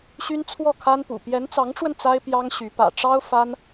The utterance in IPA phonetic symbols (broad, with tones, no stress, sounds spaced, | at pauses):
ɕ y˥ n t͡sʰ w ɔ˥˩ kʰ a˥ n p ṵ˨˩ p j ɛ˧˥ n t͡s ɑ˧˥ ŋ ʈ͡ʂ w ə˧ n t͡s a˥ ɪ̯ p j ɑ˥ ŋ ɕ y˧˥ p ä̰˨˩ ʈ͡ʂ ɑ˥ ʊ̯ f a˥ n